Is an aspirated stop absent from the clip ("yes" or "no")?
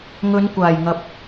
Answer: yes